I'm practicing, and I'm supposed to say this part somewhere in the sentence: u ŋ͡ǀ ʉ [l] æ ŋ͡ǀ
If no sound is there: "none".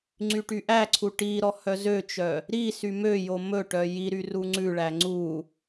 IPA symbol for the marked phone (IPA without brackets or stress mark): ɭ